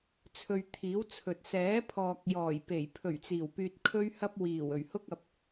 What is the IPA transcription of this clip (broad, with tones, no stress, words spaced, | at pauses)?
t͡sʰɵ˧ɥt̪ʰiː˨˥wt͡sʰɵ˨t̚ sɛː˨˥pʰɔː˨k̚ jɔː˨˩jpe˨˩j pʰɵ˨˩ɥ t͡siː˨˩wpyː˧t̚ kʰɵ˥ɥhɐ˥p̚ wiː˨˩w ɵ˨˩ɥhʊ˥k̚ɐ˨˥p̚